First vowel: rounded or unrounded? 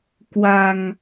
unrounded